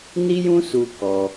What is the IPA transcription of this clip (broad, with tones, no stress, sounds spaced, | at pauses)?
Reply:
n i˦ j ũ˦ s u˧ k ɔ˧